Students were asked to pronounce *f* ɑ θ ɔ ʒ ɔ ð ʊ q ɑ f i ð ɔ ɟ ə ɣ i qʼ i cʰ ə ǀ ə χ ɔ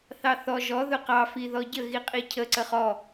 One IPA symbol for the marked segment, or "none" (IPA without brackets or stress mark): θ